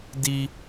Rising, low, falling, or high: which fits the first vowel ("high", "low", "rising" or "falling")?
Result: high